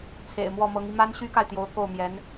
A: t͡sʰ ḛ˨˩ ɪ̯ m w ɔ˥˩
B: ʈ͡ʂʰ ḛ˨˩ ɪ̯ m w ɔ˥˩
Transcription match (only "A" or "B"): A